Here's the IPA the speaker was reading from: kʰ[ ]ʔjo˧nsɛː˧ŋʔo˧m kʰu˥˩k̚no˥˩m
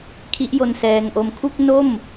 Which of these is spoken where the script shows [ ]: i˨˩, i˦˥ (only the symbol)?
i˦˥